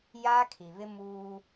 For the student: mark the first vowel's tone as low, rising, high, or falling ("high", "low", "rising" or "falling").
high